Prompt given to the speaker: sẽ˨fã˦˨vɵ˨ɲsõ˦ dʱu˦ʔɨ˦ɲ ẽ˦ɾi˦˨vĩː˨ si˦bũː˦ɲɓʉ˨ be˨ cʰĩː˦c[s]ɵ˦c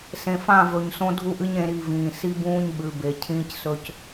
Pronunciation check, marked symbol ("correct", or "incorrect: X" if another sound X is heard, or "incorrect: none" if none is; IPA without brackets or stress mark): correct